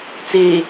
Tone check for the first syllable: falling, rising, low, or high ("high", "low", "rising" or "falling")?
low